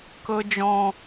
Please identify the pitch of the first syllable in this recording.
high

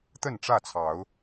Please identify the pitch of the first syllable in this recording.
falling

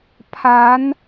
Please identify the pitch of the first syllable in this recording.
rising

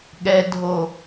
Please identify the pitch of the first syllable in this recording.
low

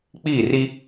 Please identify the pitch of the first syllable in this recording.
falling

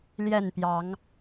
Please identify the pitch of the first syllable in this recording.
falling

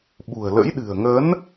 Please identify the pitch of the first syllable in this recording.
low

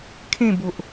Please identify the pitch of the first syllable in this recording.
falling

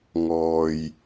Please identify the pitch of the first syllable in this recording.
low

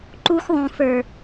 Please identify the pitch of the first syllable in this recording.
high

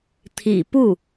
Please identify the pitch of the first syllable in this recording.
low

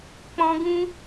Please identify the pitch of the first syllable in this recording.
high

